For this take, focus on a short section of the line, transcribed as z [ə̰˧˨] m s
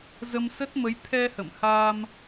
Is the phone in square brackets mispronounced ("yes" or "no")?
yes